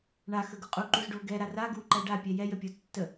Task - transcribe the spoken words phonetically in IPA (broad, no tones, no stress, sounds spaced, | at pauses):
ɳ a x ə ɡ u qʼ u ǃ u z ɖ o ɡ ɛ ɾ a r a ɡ u ǃ æ ɖ a pʲ ɛ j ɛ j ə pʲ o tː ə